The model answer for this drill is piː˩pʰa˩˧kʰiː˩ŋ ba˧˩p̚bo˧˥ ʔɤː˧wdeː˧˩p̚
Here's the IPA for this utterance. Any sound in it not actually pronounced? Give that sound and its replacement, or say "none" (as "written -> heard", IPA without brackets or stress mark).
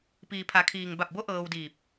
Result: eː˧˩ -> iː˧˩